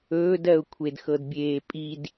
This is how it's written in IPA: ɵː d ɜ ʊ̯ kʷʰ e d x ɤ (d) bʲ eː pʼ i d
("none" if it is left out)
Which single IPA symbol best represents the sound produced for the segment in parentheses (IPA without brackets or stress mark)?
d